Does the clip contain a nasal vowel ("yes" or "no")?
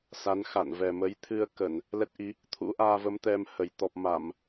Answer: no